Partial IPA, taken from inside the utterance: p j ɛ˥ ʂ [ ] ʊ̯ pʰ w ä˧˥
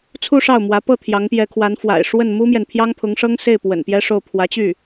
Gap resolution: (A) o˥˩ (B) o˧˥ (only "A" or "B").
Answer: A